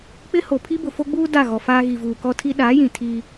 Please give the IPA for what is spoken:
k͡p ɪ˦ h o˨ pʰ i˦ b ʊ˨ f o˦ ɡ͡b uː˦ d a˦˨ ɣ ɔ˨ f aː˦ ɣ i˨ v uː˨ k ɔ˦ tʰ i˦ ɗ aː˨˦ j ĩ˨ tʰ iː˦

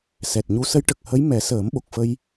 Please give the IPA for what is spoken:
s ɛ˨˩ t̚ ɲ u˧˥ s ə˧˥ j ʈ ə˨˩ k̚ h ə˧˥ j m ɛ˨˩˦ s əː˨˩˦ m ɓ o˨˩ k̚ f ə˧ j

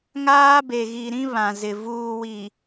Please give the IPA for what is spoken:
ŋ aː˦ b e˨ ɣ i˨ ɾ ĩ˦ β ã˨ z ɪ˨ v uː˨ w i˨

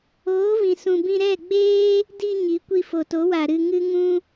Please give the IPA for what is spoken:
oː˨˦ v ĩ˨ s ũ˨ b ĩ˧ ɾ ɛ˦˨ ɡ͡b eː˦ | d i˧ ɲ i˨˦ kʷ i˧ f o˨ t o˨˦ w a˨ ɾ ɨ˧ ŋ ɨ˦ ŋ ũ˧

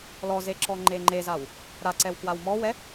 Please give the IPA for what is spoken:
l ɔ z e ǁ ɔ ŋ͡ǃ e ŋ͡ǃ e z a w | ɾ a ǀ ɛ w k w a w m ɔ w ɛ

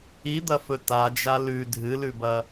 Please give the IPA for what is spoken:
i d̪ ɐ f ɵ t a d͡ʒ a l ʉ dʱ ɨ l ʉ b ɐ

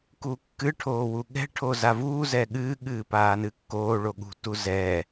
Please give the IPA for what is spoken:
k uː kː ɨ ʈʰ oː w u ɠ ɛ̤ ʈʰ oː z a v uː z ɛː ɠ ɨː ɠ ɨː p aː n ɨ kː oː ɭ o ɠ ṳ t u z ɛː

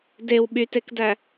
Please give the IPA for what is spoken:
d e w ɓ y t e k d æ

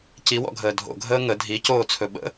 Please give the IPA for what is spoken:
c i w ɔ̰ ɡʱ əː dʱ o̰ ɡʱ əː ŋ ə dʱ i c oː t͡sʰ ɵ ɓ ə̰

